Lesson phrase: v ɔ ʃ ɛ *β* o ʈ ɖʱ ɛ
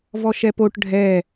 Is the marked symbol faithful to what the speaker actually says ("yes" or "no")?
no